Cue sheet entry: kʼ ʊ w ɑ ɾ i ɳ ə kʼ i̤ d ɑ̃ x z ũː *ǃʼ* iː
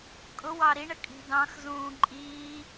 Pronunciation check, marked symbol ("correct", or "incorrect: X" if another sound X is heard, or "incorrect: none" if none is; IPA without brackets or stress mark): correct